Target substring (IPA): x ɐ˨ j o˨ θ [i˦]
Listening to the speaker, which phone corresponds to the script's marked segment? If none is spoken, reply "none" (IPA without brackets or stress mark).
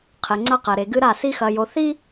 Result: i˦